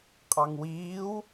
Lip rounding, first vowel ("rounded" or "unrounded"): unrounded